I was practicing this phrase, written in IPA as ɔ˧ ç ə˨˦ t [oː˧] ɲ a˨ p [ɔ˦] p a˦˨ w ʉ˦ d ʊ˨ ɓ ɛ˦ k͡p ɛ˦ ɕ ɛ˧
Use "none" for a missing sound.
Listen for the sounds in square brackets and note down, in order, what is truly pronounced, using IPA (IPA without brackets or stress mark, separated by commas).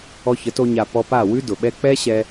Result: o˧, ɔ˧